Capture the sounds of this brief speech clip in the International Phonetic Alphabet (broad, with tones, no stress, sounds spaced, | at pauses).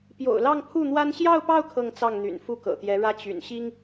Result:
p j o̰˨˩ ʊ̯ l ɑ˥˧ ŋ pʰ u˥˩ n̪ w a˥ n ɕ j ɑ˥˧ ʊ̯ p ɑ˥˧ ʊ̯ kʰ ɤ˥˧ ŋ t͡s ɑ˥˩ ŋ n̪ y̰˨˩ n f u˥ k ɤ̰˨˩ t̪ j ɛ˧˥ ɻ ä˥ t͡ɕ y̰˨˩ n ɕ i˥ ŋ